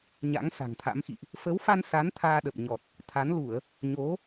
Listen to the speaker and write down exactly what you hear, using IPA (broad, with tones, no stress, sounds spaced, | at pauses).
ɲ a̰˧˥ ŋ s a̤˨˩ ŋ t̪ʰ a̰˧˥ m x ḭ˧˨ ʔ | f ə˨˦ w f a˧ n s a˨˦ n t̪ʰ aː˧ ɗ ə˨˩ p̚ ɲ ɔ˨˩ t̚ | t̪ʰ a˨˦ n l u˧˩˨ ə̯ | ɲ o˨˦